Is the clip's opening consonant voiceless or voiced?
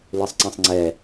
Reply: voiced